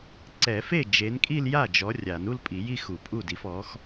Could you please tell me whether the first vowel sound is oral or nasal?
oral